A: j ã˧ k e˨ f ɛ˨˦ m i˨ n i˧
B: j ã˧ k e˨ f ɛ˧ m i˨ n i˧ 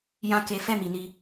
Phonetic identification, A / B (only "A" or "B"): B